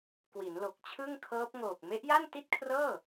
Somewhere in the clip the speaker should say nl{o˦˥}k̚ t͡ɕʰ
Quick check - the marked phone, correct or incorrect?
incorrect: o˨˩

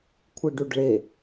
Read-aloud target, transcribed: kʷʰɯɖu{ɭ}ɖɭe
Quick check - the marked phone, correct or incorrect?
incorrect: none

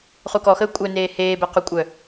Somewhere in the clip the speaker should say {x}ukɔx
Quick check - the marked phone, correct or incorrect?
incorrect: χ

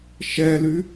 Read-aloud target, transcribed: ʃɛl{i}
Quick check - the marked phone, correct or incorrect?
incorrect: y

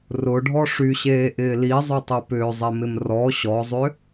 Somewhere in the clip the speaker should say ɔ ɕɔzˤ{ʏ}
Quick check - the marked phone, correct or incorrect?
correct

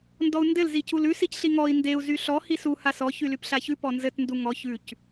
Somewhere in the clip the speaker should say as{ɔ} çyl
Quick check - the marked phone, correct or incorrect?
correct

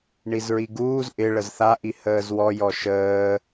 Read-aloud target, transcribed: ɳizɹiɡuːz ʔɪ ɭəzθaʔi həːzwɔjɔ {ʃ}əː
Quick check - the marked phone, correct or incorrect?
correct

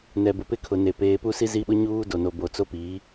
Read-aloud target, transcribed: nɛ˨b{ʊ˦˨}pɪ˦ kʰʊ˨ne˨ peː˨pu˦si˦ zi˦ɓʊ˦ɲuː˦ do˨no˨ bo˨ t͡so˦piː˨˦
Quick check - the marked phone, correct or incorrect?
incorrect: ʊ˨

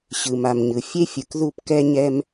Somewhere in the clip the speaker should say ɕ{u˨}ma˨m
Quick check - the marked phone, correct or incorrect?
incorrect: ɯ˨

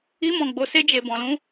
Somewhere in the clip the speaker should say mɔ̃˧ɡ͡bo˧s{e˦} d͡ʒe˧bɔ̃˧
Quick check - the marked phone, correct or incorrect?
correct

